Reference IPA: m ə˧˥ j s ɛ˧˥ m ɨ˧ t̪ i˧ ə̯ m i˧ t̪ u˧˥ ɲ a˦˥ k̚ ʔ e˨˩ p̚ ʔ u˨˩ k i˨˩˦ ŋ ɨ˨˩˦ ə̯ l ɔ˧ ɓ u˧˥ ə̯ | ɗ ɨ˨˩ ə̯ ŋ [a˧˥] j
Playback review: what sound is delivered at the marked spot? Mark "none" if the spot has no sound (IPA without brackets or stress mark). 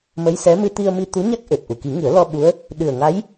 a˧˥